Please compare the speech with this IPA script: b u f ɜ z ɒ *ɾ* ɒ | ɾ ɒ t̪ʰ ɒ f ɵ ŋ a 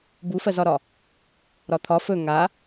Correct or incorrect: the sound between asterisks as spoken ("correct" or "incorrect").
correct